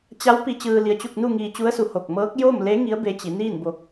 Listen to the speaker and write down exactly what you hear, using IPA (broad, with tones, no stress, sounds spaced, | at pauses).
t͡ɕ a˧˥ w p i˧ t͡ɕ ɯː˧ l i˧ ə̯ t͡ɕ u˥˨ k̚ n u˥˨ ŋ iː˧ t͡ɕ u˧˥ ə̯ s u˧ h o˧˩ k̚ m ɤː˧˥ k̚ j o˥˨ m l e˧˥ ŋ i˧˥ ə̯ b e˧ t͡ɕ i˩˧ n iː˥˨ n b o˧ k̚